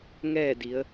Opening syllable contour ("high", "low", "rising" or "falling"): falling